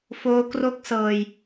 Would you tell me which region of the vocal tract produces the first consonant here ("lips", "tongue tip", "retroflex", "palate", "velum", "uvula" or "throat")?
lips